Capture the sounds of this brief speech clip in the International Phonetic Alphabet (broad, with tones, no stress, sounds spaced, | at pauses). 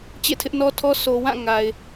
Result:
t͡ɕ ḛ˦˨ tʰ ɪ˦ ʔ n ɔ˦ tʰ ɔ˦ sʰ o˨ w ã˦˨ ŋ a˨ ɪ̯